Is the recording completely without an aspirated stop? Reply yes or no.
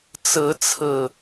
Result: no